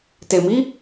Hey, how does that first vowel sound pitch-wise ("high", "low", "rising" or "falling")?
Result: low